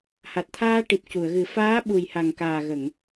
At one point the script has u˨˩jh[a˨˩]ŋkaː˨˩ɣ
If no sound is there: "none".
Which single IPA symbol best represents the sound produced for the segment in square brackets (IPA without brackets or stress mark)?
a˨˩